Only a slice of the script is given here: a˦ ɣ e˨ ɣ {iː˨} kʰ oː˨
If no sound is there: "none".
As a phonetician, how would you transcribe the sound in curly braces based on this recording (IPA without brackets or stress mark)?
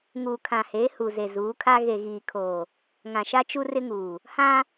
iː˨